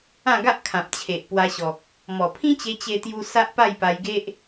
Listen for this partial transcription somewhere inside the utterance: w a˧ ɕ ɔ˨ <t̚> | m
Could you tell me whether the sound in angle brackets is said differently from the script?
yes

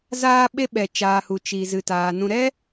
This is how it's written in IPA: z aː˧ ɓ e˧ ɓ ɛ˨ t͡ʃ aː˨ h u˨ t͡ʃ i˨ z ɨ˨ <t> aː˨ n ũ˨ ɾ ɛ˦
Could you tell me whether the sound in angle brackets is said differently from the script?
no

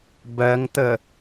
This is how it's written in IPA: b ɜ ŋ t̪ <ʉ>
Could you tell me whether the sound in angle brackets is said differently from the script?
yes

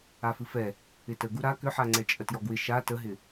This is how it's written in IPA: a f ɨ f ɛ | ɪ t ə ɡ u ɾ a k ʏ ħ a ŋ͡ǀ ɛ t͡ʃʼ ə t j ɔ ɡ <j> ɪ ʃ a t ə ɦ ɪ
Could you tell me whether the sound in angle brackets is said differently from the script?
yes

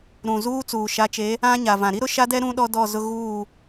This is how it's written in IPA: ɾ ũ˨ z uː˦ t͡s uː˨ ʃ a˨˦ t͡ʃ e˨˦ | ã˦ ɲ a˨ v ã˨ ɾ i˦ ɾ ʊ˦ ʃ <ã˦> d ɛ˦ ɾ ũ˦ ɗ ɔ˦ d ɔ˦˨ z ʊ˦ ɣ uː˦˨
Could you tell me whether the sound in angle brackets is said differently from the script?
yes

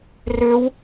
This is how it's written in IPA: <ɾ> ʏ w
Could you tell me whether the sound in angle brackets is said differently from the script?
yes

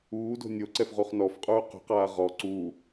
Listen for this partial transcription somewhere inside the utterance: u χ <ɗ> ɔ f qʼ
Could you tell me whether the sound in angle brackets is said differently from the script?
yes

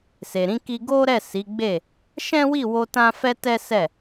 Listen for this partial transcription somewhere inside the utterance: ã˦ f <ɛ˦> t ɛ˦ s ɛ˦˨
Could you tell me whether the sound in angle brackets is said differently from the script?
no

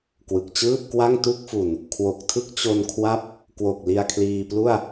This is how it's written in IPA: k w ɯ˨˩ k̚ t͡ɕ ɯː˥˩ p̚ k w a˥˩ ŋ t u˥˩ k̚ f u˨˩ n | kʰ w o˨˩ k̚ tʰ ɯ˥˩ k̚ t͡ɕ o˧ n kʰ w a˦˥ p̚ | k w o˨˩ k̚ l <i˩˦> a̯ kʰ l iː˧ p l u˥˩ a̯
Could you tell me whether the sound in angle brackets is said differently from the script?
yes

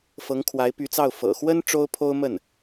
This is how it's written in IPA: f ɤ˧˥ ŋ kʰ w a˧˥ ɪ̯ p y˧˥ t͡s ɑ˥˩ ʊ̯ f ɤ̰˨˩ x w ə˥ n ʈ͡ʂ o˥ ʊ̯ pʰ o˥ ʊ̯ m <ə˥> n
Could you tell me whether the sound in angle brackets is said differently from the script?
yes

